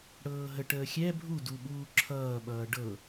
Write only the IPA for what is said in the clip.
ɽ ɤː ɦ ə ʈ əː xʲ ɛ bʱ u d u ɓ uː ǁʰ ʌː ɓ ʌː ɖ ɤ

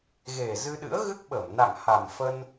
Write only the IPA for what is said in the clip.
ɣ e˨˩ z ɨ˧ ɗ ɨ̰˧˥ ə̯ ɣ ɨ˦˥ k̚ ɓ ə˧˩ m n a̰˧˨ ŋ h a˨˩ m f ə˧ n

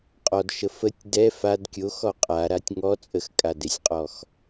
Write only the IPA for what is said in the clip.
qʼ ɔ d ʃ ə f ə tʲ d ɛ f a d kʲ o x ɔ qʼ a ɾ a tʲ ŋ ɔ t͡sʼ ə x kʼ a d e sʲ qʼ ɔ x

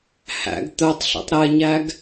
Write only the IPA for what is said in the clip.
h æ̰ ɡ t̪ œ tˤ ɬ ɛ̰ tˤ ɾ ɛ ɲ æ ɡ

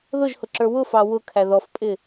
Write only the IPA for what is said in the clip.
ð ʊ ʒ h ʊ ǁ ə˞ w ʊ f ɑ w ʊ kʰ æ ð ɔ f pʼ ɪ

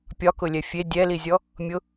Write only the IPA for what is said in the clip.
pʲ ɒ k ʊ lʲ ɛ fʲ e dʲ ɛ l i zʲ ɔ | mʲ ʊ

